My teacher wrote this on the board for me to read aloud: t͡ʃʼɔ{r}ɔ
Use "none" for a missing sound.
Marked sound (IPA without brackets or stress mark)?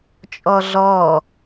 ɮ